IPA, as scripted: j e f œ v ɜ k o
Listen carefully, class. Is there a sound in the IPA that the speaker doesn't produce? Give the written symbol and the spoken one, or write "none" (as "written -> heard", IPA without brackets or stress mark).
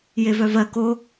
f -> v